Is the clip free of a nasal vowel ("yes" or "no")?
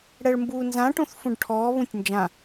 no